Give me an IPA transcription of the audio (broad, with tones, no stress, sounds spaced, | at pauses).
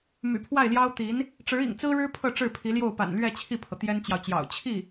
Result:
m y̰˨˩ pʰ w a˥˩ ɪ̯ l j ɑ˥ ʊ̯ t̪ i˧˥ n | ʈ͡ʂ ɻ̩˧˥ ḭ˨˩ ŋ t͡s ɹ̩˥ ɻ ɻ̩˥ pʰ ɤ˥˧ ʈ͡ʂ ɻ̩˥˩ pʰ i˧˥ l j o˥˩ ʊ̯ p a̰˨˩ n l ɥ ɛ˥˧ t͡ɕʰ i˥˩ pʰ ɤ˩ t̪ j ɛ˥ n t͡ɕ j ɑ˨ ʊ̯ t͡ɕ j ɑ̰˨˩ ʊ̯ t͡ɕʰ i˥˩